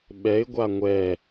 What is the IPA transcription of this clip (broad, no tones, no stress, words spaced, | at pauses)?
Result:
ɓɛɪ̯ɡʷa ŋʷɛ